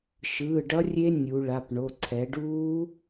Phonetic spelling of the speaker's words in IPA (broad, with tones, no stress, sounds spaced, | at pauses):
ʃ ɯː˩˧˩ ɖ ʌ˦˥ rʲ e˦˥ nʲ u˩˧ ɭ a˩˧˩ p ɳ o˩˧˩ ǀʰ ɛ˩˧ ɖ uː˦˥